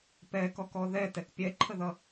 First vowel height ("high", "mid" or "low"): mid